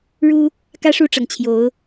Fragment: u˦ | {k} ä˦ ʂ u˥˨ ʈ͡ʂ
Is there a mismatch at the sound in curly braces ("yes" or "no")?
no